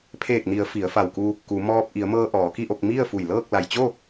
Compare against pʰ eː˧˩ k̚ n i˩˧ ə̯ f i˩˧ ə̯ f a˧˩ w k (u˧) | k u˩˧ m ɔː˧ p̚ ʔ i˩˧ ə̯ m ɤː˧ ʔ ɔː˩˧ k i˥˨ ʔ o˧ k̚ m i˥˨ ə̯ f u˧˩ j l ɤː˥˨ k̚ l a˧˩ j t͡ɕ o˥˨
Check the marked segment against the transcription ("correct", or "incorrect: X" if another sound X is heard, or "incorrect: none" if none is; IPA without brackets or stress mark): correct